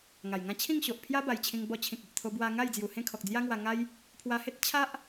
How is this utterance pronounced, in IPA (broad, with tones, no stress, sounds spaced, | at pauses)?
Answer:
ŋ a˨˩ j ŋ ã˦ t͡ɕʰ ĩ˥˧ ŋ ɕ o˨ ʔ pʰ j a˦ b a˨˩ j t͡ɕʰ ĩ˧ ŋ b ɔ˧ t͡ɕʰ ĩ˨ k̚ i˨ ʔ t̪ʰ o˧ b w a˧ ŋ a˥˧ j d͡z j u˨˩ h ẽ˥˧ kʰ ɔ˨ k̚ d͡z j a˦ ŋ w a˧ ŋ a˦ j | pʰ w a˧ h e˦ t̚ t͡ɕʰ a˦ ʔ